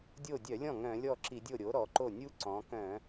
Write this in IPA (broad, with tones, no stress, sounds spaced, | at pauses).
dʲ o˥˩ dʲ œ˧˩˧ lʲ ɔ̃˥˩ ŋ œ̃˧˩˧ lʲ ɔ˥˩ ǁ i˧˩˧ dʲ o˥˩ ɾʲ o˩˥ ɾ ɔ˩˧ ǃ o˥˩ nʲ u˦˥ ǀ ɔ̃˩˧ k œ̃˧˩˧